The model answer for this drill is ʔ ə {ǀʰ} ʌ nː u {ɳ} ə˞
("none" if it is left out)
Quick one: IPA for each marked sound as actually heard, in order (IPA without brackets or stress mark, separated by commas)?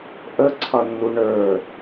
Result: ǀʰ, ɳ